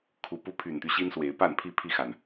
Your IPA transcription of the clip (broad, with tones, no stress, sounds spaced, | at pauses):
kʰ u˨˦ p u˦ pʰ y˨˩ n t̪ y˦ ɕ i˦ n s w e˨˦ ɪ̯ p a˥˨ n pʰ i˥˨ pʰ i˥˨ x a˨˩ n